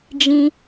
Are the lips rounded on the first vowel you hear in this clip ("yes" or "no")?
no